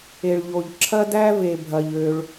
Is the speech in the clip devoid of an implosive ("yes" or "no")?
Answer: yes